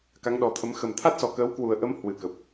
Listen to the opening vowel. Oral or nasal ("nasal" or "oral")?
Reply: oral